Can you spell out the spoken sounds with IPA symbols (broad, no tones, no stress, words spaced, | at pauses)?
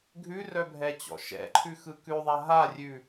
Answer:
ɡʱʉrœbʱɛt͡ɕɔ̰ ʃɛ̰ǃʰʉxɯ kʉðˤa ɦarʲʉ